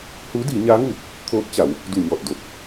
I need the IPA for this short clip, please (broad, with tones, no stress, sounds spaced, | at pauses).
h uː˧˥ d iː˩˧ ɲ aː˧˥ ŋ uː˧˩ p̚ | t̪ʰ oː˧˥ t̚ t͡ɕ a˩˧ w | d u˧˩ ɲ ɔː˧˩ t̚ d o˧˩ t̚